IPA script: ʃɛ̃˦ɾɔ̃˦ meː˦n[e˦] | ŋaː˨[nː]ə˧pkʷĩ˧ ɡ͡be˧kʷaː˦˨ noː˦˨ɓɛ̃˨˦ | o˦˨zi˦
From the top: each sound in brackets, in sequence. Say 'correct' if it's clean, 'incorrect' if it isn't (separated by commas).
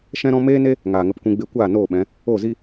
correct, incorrect